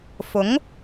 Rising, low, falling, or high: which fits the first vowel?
rising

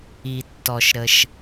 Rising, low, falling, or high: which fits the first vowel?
low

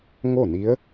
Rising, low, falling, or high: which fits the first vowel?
falling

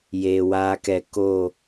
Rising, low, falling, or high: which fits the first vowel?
low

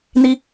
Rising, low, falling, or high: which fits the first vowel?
high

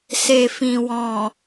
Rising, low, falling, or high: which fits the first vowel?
low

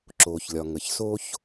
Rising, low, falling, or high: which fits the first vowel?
low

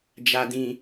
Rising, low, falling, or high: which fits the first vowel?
low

